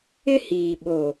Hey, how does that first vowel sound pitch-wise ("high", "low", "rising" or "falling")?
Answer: high